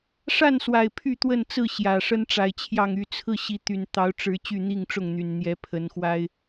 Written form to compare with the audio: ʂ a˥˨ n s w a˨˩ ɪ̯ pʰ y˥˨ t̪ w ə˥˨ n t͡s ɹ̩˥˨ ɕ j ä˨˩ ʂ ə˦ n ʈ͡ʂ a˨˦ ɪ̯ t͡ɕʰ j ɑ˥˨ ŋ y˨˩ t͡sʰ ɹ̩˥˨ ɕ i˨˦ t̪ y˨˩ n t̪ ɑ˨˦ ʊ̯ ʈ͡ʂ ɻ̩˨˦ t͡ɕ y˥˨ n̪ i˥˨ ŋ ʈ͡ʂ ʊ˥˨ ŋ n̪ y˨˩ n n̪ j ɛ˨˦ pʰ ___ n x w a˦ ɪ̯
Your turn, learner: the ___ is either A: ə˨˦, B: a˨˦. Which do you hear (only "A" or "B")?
A